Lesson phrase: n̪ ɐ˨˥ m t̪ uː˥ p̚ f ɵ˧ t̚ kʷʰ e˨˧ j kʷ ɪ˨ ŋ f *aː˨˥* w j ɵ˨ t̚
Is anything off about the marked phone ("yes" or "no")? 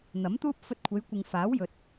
no